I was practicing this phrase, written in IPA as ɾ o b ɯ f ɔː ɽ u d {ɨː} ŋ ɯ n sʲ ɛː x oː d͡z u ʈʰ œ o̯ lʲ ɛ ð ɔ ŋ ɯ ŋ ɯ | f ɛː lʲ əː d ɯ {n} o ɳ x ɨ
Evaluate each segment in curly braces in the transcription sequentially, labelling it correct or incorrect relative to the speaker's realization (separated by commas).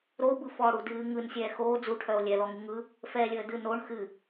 correct, correct